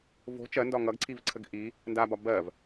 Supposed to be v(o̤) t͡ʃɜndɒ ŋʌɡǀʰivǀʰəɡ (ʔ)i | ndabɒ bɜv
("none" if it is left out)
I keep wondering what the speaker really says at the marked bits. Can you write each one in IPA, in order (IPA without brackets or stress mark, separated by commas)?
o̤, ʔ